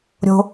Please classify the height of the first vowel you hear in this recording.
mid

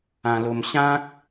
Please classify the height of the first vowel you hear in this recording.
low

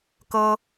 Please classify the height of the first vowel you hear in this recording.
mid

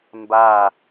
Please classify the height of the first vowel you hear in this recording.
low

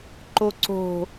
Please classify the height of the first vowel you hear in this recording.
mid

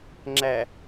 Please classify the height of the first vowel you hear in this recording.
low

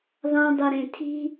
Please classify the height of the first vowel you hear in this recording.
low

